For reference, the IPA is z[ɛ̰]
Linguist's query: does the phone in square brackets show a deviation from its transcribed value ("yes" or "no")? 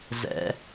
no